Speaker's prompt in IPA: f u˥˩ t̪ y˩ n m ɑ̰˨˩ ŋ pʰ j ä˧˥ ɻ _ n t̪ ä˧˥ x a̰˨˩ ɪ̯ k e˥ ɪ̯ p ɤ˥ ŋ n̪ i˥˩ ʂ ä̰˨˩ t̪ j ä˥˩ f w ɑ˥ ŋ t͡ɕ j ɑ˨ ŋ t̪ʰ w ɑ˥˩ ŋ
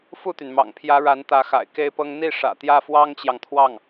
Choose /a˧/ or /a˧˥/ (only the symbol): a˧˥